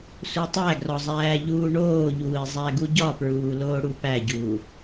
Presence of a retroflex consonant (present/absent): present